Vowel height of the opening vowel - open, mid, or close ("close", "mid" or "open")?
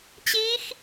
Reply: close